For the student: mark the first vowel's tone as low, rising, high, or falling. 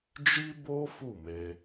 high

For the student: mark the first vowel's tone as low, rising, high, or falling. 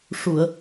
low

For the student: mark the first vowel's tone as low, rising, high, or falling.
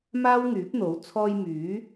high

